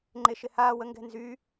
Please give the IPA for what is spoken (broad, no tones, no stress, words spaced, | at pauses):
ŋ͡ǃeʃɪhaːw əŋɡɛ̤nzy